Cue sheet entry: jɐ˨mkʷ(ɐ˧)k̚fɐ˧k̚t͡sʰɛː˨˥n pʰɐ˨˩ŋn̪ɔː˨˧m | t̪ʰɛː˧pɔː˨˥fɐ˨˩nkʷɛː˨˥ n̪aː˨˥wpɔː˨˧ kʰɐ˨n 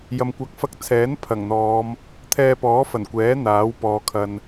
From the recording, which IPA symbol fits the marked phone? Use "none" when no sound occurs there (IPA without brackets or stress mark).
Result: ɐ˨˥